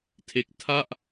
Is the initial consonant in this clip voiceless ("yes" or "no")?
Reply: yes